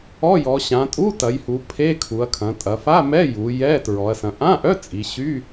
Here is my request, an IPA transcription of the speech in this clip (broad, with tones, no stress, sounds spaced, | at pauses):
ɔ˧˥˧ j ɔ˩˧ ɕ ã˩˧ tʼ u˧˥˧ t ɐ˩˧ j h u˩˧ pʰ e˧˥˧ kʰ u˩˧ ɐ̯ kʰ ɐ̃˩˧ tʼ ɐ˩˧ f a˧˥˧ m ɛ˧˥˧ j u˩˧ j ɛ˧˥˧ t ɹ ɔ˩˧ ɐ̯ s ɐ̃˩˧ ʔ ã˧˥˧ ʔ œ˧˥˧ t͡sʼ i˩˧ ɕ y˧˥˧